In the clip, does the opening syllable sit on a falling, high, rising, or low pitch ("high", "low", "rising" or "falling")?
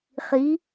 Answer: rising